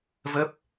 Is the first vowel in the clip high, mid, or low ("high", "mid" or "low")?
mid